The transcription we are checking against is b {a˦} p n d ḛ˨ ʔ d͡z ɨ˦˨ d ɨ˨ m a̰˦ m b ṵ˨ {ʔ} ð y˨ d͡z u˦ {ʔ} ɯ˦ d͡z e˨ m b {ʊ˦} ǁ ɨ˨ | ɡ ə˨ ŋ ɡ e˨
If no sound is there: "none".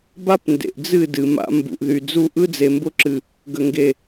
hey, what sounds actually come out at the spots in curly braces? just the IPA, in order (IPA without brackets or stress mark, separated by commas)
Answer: a˦, ʔ, ʔ, ʊ˦